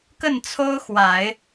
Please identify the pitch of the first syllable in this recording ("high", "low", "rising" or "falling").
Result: falling